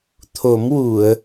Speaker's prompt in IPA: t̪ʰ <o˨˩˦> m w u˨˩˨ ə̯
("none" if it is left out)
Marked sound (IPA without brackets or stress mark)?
o˨˩˦